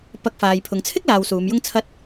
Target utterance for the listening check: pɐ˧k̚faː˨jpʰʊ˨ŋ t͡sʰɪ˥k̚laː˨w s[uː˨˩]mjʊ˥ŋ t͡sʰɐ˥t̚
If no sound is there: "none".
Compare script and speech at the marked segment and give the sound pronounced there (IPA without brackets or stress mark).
uː˨˧